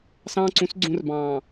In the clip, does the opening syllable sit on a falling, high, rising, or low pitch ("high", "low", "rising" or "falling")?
high